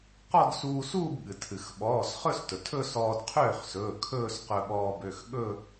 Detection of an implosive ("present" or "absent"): present